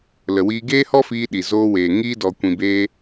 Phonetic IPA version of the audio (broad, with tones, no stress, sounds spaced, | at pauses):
l ə˨ w iː˧ ɡ eː˦ h ɔ˦ f iː˧ ɗ i˨ z oː˧ w eː˨ ŋ iː˧ d ɔ˨ kʷ ĩ˨ b eː˧